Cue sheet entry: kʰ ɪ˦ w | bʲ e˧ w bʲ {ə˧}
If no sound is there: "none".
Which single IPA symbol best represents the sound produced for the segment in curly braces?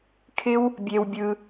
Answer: ɯ˧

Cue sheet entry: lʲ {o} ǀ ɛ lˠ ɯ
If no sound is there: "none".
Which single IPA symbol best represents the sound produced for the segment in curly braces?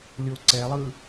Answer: o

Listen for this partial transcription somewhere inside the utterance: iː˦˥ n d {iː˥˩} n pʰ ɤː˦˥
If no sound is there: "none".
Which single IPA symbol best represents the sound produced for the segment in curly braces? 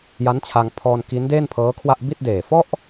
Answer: eː˥˩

